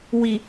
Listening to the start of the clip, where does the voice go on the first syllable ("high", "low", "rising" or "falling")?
low